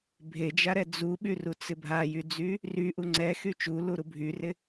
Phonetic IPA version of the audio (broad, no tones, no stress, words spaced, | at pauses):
bʱed͡ʒaɾɛ d͡zuɓyrut͡sɪ bʱajyd͡zy | ryʔu ŋ͡ǀɛxy t͡ʃuluɾu bʱyrɪ